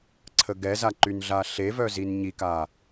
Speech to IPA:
ǀʰəɡɛza ǃynɮaɬevœ zinɲika

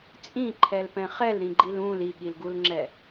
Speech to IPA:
t͡sʼĩǃʰɛlpɛ̃ χɛlɾĩɡ͡ǃil ũl iɠilɡulŋ͡ǁɛ

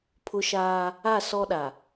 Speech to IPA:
pʰʊ˦ʃaː˦ | a˦˨ sɔ˦ɗa˨

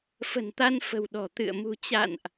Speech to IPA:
fə̤˨˩nt̪a˧nfə̤˨˩w ɗɔ̤˨˩t̪ɨ̰˧˨ə̯ mṳ˨˩t͡ɕa̰˧˨nʔ

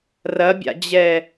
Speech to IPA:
rɐbʲa̰d͡ʑɛ

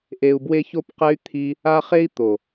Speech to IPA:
ʔe˧u̯bwe˦ço˦pqɛ˦y̯ t̪ʰi˧ | a˦χe˦i̯t̪o˨

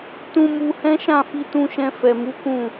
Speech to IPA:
tũ˧mu˧hɛ̃˦ ʃã˦˨fi˧ tũ˧ʃɛ̃˧ fɛ˨mu˨˦ kũ˦˨

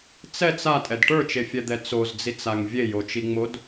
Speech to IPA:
t͡sɛt͡s atʼɛd ʈə˞t͡ʃefʲɛd̪ɛ t͡sozd͡zit͡saŋ vʲejot͡ʃiŋ͡mod

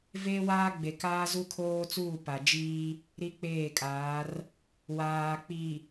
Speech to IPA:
veː˦waː˦ɡ͡be˨kaː˦ zu˦kʰoː˦t͡suː˦˨ pa˨d͡ʒiː˦ | ɾi˦k͡peː˦˨kʼaː˨˦r | waː˨ k͡pi˨

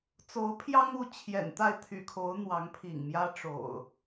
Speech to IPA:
t͡so˨˦ʊ̯pʰjɑ˦ŋu˥˨ t͡ɕʰjɛ̰˨˩nt̪a˥˨ɪ̯t̪ʰy̰˨˩kʰo˨˦ʊ̯ n̪wɑ˨˦ŋpʰḭ˨˩ŋmjä˦ ʈ͡ʂo̰˨˩ʊ̯

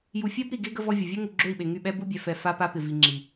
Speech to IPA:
ju˨fʲɛ˦b ɾi˨ɡe˦ ɡə˦vɔ˦vʲə˨ vʲø˦ŋu˨ ɡ͡ǁø˦˨i̯ɓe˨ ŋy˦˨ ɓɛ˦bu˦bʲɛ˨ fɛ˨ fa˦pa˦ pɪ˨vi˨ ŋ͡ǁi˨

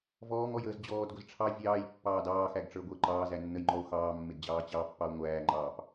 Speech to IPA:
vɔːŋɔjəːz d͡ʑɔːdɡʷɪz ʈ͡ʂʰɑ vʲɑːjpːɑːd ɑːxæɡʈ͡ʂə˞ɡʷəː ǃɑːzænːəjŋ͡ǃɔo̯ xɑːmːɪdd͡ʑɑː t͡ɕɑpːɑo̯ ŋʷæːŋ͡ǃɑːp

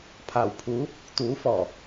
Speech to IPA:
pʰaː˨˩wpʰuː˨˥ | t̪uː˨˥ fɔː˨˩

